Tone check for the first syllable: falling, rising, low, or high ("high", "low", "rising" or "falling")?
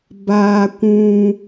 high